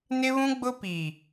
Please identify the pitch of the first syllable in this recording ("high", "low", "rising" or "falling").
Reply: high